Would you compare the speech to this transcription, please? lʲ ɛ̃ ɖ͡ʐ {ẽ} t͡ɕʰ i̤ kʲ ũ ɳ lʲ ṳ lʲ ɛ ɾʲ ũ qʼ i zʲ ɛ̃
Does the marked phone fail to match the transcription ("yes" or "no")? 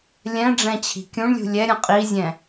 yes